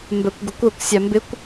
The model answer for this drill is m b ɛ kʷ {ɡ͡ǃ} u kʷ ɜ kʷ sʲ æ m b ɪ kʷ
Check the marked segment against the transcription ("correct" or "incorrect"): incorrect